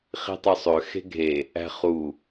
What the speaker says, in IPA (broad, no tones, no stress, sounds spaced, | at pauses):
χ i̤ tˤ ø sˤ ø x e̤ ɡʱ e | æ̤ χ u